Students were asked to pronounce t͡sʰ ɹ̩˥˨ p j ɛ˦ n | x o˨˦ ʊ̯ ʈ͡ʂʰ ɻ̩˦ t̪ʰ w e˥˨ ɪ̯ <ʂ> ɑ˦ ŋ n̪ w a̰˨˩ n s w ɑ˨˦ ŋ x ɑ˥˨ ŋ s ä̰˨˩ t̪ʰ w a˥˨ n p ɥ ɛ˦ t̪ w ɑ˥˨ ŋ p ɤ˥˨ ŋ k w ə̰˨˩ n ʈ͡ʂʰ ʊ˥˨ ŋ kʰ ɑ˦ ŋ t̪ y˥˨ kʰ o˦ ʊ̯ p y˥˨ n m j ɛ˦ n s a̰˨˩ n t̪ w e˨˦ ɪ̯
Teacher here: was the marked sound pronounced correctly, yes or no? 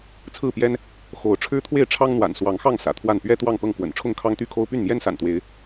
no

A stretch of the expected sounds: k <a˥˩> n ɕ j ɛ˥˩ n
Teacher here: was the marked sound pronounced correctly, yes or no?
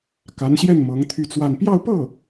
no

